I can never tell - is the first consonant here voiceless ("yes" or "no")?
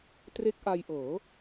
yes